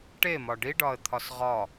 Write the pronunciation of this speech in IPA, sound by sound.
ʈemɒ ɖiɖɒə̯t̪ʰɒs ʁɒ

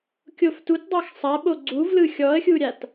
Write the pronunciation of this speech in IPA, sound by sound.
kʲoftutdˤax sˤaɓo ɡ͡ǀuvlɯ xʲɔə̯xʲuɾʲat

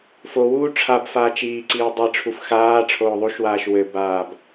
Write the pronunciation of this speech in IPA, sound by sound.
fo wuːʈ͡ʂʰabfaːt͡ʃ iːǀiː dˤi ʈ͡ʂʰufxaːʈ͡ʂʰoː ðˤuʃwaːʃ wɘbaːb

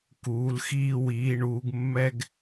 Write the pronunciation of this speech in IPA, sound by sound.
kuː˩˧lxiː˧ wiː˩˧ɳuː˩˧ɡ mːɛ˧ɡ

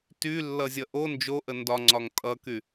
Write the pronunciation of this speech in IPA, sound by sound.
tylːʌzʲʌ ʔo nd͡ʒoʔə ndɒŋ͡ǀɒŋ tʼʌky

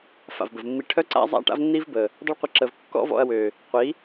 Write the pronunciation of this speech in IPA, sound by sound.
fa̰˨vbə˨vmːi˧ ʈʰœ˦ǀa̰˦ zˤa̰˦ ʈa̰˦vnːi˦vbə˨ | dˤə˦ɭqʷə˧ǁə˨v kːɔ̰˦vɔ̰˧ɐ̯wø˨ | qʷi˨˦

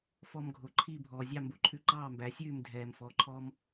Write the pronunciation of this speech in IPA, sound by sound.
fɔ˧mɡʱo˩ǃʰi˥˩ bʱɔː˩zʲɑ˥˩mbo˧ǃʰʉ˧ ǃɑː˥˩mbæ˩˥sʲʉː˥˩m dʱɛː˩mfɔ˩˥ǃʰɔ˧m

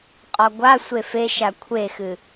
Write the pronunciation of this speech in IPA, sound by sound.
qʼɒɡʷasʷe feʃa kʷʰexɨ

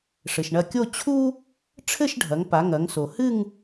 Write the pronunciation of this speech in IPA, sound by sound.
ʂɘ˩ʃɳɐ˧˩kʲo˥˧ t͡ɕʰu˥ | ʈ͡ʂʰɘ˥˧ʃɖʱɐ˩˧ŋ pa˩˧ŋɐ˩˧ŋso˩ hɨ˥˧ŋ

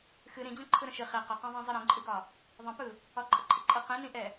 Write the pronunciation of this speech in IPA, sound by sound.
xɨ ɾĩd͡ʑə̃ ǃʰɯɾə̃ʃɨ χi qəqɛ̃ðˤĩ zˤɨɾĩǃʼɨɡɒ | ðˤə̃pɯ | ɒǃʼəǃʼɨǃʼɨ qĩnĩʔɛ

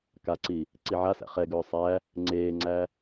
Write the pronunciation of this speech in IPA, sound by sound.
kaǀi | ǀiʕasæ̰ χɛɡɵː sˤæ | ŋ͡ǀeːŋ͡ǀæ

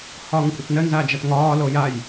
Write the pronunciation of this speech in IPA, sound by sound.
hɒːŋkʷʼɐtnənza d͡ʒatŋɒːlo jaj

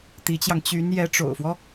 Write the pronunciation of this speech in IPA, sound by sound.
t̪i˧˥t͡ɕjɑ˧ŋ t͡ɕy˧˥n jɛ˧˥ʈ͡ʂo̰˨˩ʊ̯fwɔ˦

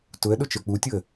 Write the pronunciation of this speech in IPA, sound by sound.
tʊə̯ɗʊ t͡ʃə˞k͡putʲoə̯

